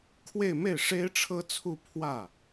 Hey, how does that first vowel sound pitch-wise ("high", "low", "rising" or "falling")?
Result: falling